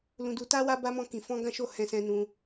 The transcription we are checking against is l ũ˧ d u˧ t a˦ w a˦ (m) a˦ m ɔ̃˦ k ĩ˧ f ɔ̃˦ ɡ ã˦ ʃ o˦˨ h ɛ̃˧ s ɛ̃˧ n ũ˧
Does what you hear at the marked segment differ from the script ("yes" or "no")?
yes